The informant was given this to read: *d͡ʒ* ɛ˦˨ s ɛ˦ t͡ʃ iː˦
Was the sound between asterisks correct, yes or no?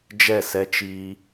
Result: yes